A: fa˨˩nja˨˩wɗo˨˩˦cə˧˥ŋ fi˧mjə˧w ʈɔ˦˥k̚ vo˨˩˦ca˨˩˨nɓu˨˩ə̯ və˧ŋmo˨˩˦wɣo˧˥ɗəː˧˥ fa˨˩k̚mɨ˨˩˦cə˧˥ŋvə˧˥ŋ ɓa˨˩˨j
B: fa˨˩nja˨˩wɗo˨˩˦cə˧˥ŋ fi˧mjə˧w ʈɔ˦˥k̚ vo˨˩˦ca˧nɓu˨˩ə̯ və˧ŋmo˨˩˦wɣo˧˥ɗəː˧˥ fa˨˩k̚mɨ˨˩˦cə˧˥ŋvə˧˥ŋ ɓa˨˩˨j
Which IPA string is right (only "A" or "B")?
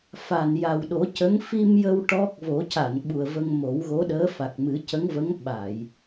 A